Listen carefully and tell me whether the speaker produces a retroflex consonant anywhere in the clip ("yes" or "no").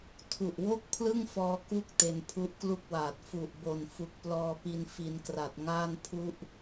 no